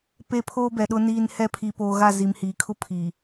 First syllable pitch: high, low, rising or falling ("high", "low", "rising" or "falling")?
low